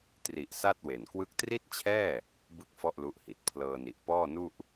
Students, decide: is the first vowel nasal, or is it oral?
oral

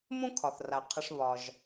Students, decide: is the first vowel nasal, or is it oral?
nasal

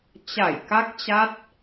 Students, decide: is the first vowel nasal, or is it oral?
oral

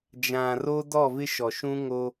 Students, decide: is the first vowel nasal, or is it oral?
nasal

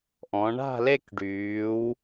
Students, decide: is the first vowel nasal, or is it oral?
nasal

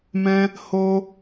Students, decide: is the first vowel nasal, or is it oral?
nasal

